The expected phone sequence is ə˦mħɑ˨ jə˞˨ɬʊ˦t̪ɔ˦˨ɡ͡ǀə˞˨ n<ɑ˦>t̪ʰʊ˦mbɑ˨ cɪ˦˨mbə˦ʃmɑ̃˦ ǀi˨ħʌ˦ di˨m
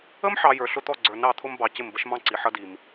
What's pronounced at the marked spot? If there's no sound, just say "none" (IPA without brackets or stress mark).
ɑ˦˨